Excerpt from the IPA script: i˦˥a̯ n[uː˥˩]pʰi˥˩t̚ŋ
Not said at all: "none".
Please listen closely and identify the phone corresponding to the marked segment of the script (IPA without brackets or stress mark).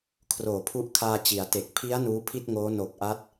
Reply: uː˦˥